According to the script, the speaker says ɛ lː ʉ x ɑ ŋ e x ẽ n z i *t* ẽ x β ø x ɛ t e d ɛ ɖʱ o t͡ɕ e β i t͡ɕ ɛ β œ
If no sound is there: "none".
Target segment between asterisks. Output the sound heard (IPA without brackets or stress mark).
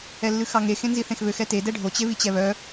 θ